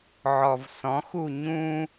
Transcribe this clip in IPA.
ʕ ɔ v s ɔ̃ x u ɲ ũ

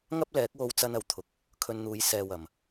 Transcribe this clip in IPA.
ŋ ɐ˥ p̚ l ɛː˨˥ k̚ w o˧ w t͡s ɐ˥ n ɐ˨˩ w t̪ʰ ʊ˨˥ k̚ | kʰ ɵ˧ n n̪ uː˨˧ j s ɛː˨ w ɐ˨˩ m

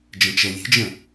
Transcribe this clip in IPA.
d͡ʒ ə̃ t͡ʃ ɛ lʲ e̤ d͡ʒ ə̃

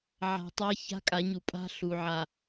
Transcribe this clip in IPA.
ʕ a̤˨ tˤ a˦ ç a̤˦ kʼ a˨˦ ɲ u˨ pʼ a̤˦ ɬ u˨ ʕ a˨

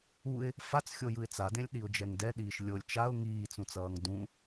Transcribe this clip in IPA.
u ɪ̯ | f a t͡s xʲ o j ɯ ɪ̯ t͡s a d ẽ lʲ ɗ i ʊ̯ d͡ʒ ɛ ŋ d ɛ ɗ iː ʃ lʲ o lʲ t͡ʃ a ʊ̯ ŋ iː t͡s ũ t͡s ʌː ŋ d ũ

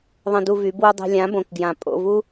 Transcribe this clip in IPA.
ðˤ ə̃˧ d u˧ v y˨˦ b w u˧ dˤ ɛ̤˧ lʲ ã˨˦ b õ˨ k ɡ j ã˨ pʼ o̰˦˨ v u˦

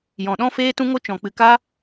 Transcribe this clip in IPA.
j ɔ̃˨ ɗ ɔ̃˦ f eː˦ t ũ˦ ŋ o˦ t͡ʃ ɔ̃˨ k͡p ɨ˨ k a˦

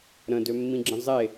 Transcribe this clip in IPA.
ɾ ə̃ d ø mː ĩ ɡ͡ǁ ə̃ zˤ e

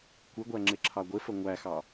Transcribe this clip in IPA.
kʷ ɪ ɡʷ æ ŋ͡ǁ ɪ ǁʰ ɑ ɡʷ ɪ f ə ŋʷ æ x ɑ

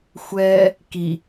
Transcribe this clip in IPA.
xʷ ɛ | k i

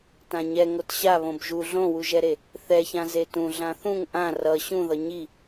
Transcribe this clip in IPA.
t ã ɲ ɛ ŋ o t ɕ a β õ b ʒ u ɮ õ w u ʒ ɛ ɾ e | θ ɛ ç ã z e t ũ ɮ ã θ ũ ŋ ʔ ã r ʌ ɕ ũ ð ʌ ɲ i

